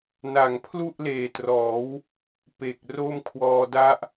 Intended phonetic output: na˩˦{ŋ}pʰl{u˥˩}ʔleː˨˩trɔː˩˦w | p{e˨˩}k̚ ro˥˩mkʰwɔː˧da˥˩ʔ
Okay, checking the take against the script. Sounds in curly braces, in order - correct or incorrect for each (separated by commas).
correct, correct, correct